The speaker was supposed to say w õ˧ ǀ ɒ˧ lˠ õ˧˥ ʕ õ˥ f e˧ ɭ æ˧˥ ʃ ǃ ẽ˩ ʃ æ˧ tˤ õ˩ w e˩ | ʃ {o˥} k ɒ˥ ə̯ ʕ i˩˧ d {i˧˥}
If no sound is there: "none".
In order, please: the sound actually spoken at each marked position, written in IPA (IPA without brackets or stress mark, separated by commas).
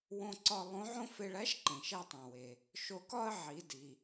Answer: o˧, i˩